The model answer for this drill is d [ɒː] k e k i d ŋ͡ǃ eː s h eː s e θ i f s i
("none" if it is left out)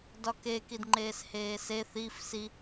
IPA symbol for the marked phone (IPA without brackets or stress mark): ɒ